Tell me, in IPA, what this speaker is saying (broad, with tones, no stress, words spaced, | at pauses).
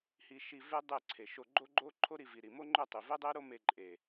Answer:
hi˧ ʃi˧ ve˦dˤe˦˨ǀʰe˨ ʃo˧ɡ͡ǃo˦ɡ͡ǃo˦ ǃʰo˦ɾi˧vi˨ɾi˨ mo˦ŋ͡ǃɵ˦˨tˤi˨ ve˦dˤe˦ɾo˦me˧ ǃʼe˨